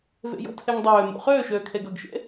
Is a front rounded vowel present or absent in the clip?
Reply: present